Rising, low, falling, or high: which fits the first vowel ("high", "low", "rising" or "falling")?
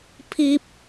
high